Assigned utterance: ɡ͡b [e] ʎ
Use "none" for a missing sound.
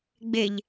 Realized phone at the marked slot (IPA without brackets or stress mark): e